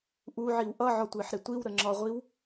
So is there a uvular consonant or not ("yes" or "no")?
yes